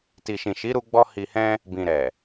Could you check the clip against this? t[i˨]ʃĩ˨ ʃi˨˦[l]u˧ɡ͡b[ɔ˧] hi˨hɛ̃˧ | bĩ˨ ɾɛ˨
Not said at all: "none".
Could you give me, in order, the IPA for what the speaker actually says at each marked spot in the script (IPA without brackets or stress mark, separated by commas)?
i˨, ɾ, ɔ˧